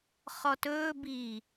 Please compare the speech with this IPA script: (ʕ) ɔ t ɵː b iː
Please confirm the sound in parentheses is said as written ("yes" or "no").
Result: no